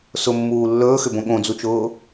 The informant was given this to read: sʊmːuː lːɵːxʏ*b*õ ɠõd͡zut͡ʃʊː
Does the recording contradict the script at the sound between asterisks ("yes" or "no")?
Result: no